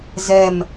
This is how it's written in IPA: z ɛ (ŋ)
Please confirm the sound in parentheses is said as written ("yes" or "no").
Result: no